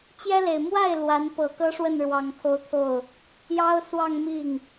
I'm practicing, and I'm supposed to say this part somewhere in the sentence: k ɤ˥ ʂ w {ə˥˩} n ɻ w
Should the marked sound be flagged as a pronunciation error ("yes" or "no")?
no